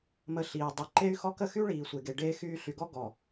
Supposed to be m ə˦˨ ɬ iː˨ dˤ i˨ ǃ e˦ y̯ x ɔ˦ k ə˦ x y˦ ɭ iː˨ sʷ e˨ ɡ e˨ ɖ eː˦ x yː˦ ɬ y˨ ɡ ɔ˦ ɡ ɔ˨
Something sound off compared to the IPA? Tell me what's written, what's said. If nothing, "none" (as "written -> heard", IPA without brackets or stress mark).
none